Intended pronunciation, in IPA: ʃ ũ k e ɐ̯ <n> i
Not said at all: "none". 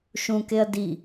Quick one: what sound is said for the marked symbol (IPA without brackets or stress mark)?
d